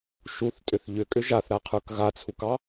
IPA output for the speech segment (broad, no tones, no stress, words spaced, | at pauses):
ʃuθtʼʏθ ʎʏkʼʏ ʒaθɾaqʰə˞k ɣat͡sʰukɑ